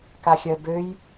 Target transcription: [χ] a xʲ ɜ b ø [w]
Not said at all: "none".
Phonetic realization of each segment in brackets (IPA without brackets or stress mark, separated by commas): k, j